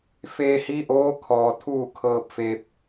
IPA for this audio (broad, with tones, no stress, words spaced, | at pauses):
feː˧hi˧˥ʔoː˧˥ kʰɔː˩t̪ʰuː˥˨ kʰɤː˧p̚fe˧p̚